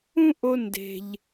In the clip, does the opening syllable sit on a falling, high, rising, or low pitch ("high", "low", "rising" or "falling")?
high